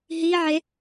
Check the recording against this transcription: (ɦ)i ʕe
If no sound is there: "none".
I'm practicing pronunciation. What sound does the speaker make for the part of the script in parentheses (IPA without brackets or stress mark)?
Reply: ɦ